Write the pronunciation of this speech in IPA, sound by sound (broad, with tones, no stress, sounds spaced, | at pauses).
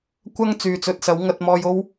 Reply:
kʷ ɐ˥ ŋ t͡s yː˨˧ t͡s ɵ˨˥ t̚ s ɐ˨˥ w ŋ ɐ˧ t̚ m ɔː˧ j o˥ w